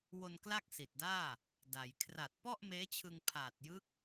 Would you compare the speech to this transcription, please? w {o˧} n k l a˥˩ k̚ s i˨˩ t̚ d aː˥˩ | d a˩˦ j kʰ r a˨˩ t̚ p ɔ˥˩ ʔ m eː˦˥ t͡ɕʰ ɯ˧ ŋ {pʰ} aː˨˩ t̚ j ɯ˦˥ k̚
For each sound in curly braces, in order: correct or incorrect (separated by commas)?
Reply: correct, correct